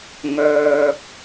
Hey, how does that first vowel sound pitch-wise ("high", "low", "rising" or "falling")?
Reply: low